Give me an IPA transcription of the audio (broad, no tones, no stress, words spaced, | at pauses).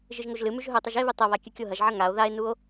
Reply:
ʒɨʒŋoʒlɨmʉʒ ɦɵtˤɨʒ eβɨ tˤɐβa kʲɨkʲoɦɐʒʕɐ ŋao̯ ðae̯nuo̯